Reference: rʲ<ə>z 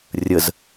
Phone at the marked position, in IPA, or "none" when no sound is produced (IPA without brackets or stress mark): ə